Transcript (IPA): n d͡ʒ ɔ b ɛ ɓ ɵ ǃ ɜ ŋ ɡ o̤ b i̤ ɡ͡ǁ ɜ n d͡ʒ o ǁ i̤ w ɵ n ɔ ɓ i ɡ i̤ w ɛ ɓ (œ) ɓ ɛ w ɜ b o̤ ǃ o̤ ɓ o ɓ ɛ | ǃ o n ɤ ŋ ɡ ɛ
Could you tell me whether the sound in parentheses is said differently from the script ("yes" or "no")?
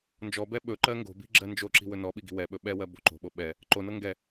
yes